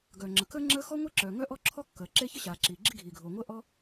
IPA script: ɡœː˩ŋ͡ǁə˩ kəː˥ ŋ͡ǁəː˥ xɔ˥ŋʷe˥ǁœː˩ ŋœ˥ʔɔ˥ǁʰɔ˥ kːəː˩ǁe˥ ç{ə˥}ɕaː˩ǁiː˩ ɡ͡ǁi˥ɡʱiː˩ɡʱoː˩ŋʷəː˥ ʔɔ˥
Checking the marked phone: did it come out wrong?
no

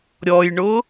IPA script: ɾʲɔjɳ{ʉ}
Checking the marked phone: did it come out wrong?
yes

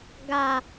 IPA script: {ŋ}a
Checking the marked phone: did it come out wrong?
yes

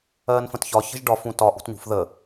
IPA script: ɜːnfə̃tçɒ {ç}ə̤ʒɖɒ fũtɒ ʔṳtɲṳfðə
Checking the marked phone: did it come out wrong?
no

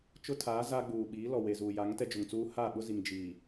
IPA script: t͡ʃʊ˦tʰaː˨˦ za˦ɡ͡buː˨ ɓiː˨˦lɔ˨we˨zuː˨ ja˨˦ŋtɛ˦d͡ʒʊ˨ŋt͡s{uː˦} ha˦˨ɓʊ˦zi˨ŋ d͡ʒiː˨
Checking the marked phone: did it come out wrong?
no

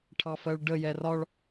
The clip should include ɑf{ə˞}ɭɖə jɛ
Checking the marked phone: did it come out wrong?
yes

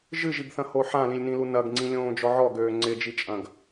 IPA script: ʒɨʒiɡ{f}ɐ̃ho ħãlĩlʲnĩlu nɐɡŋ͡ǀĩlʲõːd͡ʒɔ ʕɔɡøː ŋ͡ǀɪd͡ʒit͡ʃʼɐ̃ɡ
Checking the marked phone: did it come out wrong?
yes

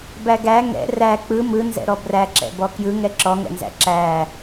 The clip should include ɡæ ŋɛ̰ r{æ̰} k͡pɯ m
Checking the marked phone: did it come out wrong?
yes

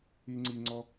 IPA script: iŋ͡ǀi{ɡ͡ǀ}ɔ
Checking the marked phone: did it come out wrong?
yes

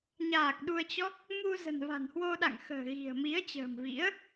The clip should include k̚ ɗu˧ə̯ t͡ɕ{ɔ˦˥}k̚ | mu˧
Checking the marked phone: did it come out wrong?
no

